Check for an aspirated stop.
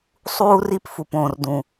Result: absent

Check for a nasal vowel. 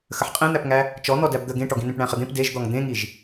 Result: present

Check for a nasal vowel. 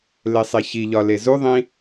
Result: present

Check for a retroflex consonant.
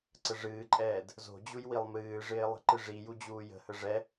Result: present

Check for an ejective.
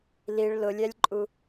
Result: present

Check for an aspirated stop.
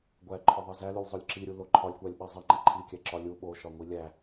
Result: present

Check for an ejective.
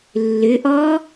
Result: absent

